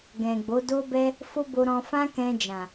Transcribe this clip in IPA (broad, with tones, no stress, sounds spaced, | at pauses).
ɡ ɛ̃˨ ɡ͡b o˨˦ d o˦ b ɛ˦ | f o˦ b o˧ ɾ ɔ̃˧ f ã˦ k ɛ̃˧ d͡ʒ ã˨